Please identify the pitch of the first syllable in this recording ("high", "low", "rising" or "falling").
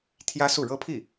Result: high